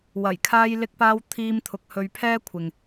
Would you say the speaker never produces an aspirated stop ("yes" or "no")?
no